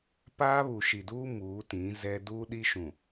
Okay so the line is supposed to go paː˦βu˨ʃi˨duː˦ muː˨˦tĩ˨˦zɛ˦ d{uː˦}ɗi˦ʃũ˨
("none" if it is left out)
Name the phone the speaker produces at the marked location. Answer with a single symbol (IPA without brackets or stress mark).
uː˦